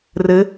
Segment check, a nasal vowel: absent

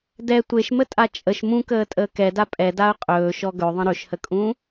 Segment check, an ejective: present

